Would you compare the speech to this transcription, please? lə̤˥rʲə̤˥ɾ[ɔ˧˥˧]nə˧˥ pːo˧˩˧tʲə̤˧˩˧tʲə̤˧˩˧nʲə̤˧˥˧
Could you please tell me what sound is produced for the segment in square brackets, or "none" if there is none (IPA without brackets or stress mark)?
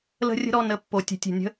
ɔ˧˥˧